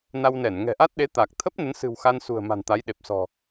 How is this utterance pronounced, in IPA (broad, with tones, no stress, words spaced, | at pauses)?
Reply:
na˧wnɛ˧˩n ŋɛ̤˨˩ʔa˦˥t̚ɗe˨˦ t̪a˨˩k̚ t̪ʰə˦˥p̚ nə˨˦nsɨ̤˨˩w xa˧nsṳ˨˩ə̯ ma̤˨˩nt̪a˨˦jɗe˨˩p̚ sɔ̤˨˩